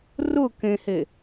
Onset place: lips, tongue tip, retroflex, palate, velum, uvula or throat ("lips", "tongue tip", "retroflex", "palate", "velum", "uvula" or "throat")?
tongue tip